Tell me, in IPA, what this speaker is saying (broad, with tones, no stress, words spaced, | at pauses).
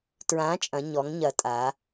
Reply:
tɹã˨˥t͡ʃʼɐ̃˩˧ ɲɔ˩˧ŋɲɐ˩˧ tʼa˩˧